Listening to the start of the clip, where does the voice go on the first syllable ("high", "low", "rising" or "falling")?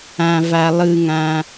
low